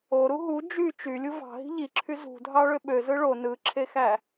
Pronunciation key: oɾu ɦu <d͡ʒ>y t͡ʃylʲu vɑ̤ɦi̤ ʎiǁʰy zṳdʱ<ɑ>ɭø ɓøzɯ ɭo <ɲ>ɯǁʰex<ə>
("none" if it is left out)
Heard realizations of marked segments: d͡ʒ, ɑ, n, æ

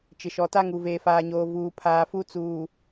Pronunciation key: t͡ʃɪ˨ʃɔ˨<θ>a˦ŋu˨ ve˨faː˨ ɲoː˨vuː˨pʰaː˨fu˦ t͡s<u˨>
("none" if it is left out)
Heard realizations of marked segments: t, uː˨

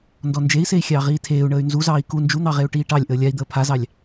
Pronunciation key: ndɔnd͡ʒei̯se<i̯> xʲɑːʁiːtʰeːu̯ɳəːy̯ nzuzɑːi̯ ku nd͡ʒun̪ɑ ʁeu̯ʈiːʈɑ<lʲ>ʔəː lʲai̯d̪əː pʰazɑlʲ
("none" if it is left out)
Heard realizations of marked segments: i̯, lʲ

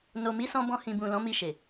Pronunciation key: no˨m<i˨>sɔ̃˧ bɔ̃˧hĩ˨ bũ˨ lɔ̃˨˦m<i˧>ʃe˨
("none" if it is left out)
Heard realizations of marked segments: i˨˦, i˧

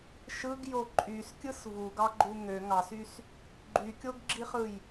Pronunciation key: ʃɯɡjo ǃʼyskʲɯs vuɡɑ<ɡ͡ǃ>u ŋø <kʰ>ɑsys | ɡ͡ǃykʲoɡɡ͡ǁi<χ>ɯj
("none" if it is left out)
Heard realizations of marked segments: ɡ͡ǃ, ŋ, χ

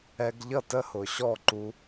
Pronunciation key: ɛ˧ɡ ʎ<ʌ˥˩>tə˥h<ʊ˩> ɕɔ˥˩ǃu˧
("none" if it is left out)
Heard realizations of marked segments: ʌ˥˩, ʊ˩

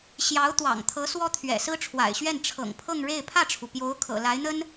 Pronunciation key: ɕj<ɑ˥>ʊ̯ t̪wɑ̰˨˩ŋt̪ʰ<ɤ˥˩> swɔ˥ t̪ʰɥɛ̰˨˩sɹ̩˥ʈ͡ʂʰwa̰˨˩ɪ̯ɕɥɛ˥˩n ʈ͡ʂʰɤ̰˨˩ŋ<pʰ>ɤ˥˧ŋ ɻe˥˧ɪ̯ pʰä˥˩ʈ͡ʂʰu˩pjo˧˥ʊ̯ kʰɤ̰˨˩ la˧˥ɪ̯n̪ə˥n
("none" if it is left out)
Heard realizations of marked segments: ɑ˧˥, ɤ˧˥, pʰ

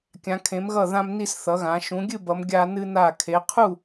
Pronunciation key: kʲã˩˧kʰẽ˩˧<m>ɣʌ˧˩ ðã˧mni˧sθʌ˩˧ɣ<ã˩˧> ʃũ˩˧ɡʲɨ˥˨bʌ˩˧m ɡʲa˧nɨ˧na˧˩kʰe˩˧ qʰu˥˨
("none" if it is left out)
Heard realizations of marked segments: m, ã˩˧

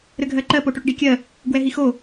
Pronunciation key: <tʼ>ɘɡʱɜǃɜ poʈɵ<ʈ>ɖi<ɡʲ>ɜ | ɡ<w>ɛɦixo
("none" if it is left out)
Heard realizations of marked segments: ɾ, ʈ, kʲ, w

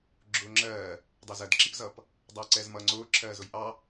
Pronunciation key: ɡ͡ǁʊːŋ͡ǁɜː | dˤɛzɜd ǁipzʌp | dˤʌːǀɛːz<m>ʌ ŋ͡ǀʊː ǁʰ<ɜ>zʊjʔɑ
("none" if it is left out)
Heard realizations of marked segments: m, ɜː

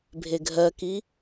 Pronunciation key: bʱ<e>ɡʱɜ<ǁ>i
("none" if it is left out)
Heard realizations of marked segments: e, k

